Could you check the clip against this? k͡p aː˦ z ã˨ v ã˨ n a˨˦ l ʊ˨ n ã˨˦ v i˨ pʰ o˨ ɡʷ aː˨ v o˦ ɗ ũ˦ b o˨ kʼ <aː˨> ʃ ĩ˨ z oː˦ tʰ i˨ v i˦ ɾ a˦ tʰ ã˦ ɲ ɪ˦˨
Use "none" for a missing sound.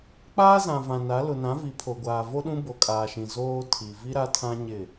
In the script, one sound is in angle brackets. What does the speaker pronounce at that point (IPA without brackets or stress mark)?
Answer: aː˨